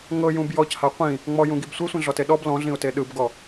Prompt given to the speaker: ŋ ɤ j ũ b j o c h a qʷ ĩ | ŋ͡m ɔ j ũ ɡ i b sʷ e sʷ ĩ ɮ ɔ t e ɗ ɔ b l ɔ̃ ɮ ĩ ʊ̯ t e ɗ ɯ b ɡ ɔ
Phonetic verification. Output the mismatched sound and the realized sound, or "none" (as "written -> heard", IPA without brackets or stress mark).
o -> ɔ